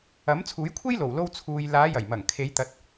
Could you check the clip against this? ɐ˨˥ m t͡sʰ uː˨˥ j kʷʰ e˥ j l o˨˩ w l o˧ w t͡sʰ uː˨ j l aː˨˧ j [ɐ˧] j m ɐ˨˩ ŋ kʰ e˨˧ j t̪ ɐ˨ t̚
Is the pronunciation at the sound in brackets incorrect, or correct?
incorrect